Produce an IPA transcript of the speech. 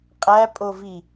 qʼ æ pʼ o v i

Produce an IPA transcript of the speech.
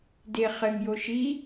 d e χ ɘ ŋ j o ʃ i

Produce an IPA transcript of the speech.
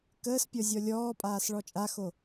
k əː s pʲ ɔ zʲ ɔ lʲ ɔː pʼ aː s ɭ ɔ t͡ʃʼ a x o

